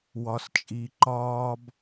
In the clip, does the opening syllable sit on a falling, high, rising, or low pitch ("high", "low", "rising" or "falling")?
low